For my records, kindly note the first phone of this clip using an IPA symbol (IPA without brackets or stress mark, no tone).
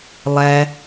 lˠ